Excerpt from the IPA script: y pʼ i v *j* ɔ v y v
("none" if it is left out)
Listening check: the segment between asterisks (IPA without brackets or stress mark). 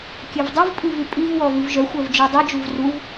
w